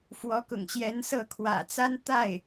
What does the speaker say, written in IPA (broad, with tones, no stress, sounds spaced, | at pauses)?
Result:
f w ɔ˧˥ k ʊ̰˨˩ ŋ ɕ j ɛ˧˥ n s ɤ˥˩ kʰ w ä̰˨˩ t͡s a˥ n t̪ a˥˩ ɪ̯